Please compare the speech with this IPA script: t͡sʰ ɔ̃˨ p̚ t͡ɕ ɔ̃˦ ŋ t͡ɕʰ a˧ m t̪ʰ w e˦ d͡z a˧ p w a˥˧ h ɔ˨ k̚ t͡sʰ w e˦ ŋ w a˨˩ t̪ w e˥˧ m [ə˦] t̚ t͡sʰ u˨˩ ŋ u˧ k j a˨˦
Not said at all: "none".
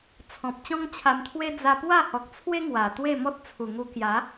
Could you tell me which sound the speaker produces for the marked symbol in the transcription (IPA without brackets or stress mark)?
ɔ˦